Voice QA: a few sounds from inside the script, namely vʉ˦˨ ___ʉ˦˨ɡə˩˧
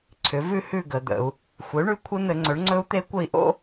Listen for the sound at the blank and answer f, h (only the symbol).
h